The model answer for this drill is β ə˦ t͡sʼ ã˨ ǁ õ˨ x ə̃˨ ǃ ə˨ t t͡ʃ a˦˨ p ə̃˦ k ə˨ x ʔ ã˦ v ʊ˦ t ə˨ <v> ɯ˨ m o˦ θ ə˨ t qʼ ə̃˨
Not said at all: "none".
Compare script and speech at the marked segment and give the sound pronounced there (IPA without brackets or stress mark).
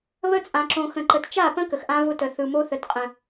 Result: θ